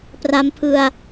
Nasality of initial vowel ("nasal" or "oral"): oral